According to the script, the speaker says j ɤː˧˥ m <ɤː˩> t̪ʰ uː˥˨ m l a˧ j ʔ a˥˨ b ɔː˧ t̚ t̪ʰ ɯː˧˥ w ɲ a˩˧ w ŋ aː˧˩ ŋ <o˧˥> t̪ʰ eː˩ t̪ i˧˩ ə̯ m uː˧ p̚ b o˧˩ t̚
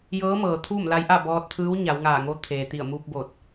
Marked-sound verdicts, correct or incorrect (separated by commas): correct, correct